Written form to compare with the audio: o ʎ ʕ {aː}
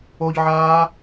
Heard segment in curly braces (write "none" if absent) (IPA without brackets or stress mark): aː